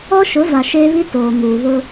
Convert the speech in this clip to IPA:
ɔ˦ ʃ ʊ˨˦ v a˨ ʃ eː˦ β i˦ t oː˨ m uː˨ β ʊ˦

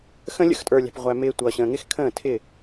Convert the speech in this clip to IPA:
x ə̃˧ lʲ ə̰˧ x tʼ ə˞˨ lʲ æ̤˨ p ʁʷ æ˨ m ɪː˧ tʷ ʌː˨ ɕ ə̃ː˨ ŋ ɪ˦ x kʰ ə̃ː˦˨ tʰ ɪ˦˨

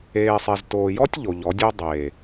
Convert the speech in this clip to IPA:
eː˨ sˤ e˨ z t oː˨ j ɔ˦ tʲ ʎ o˨ ʎ ɔ˨˦ dʲ o˦ dˤ eː˨

